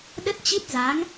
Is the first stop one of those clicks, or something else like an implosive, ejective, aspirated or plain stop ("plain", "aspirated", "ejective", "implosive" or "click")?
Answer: implosive